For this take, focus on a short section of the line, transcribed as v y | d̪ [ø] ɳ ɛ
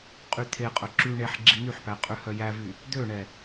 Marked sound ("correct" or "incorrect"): correct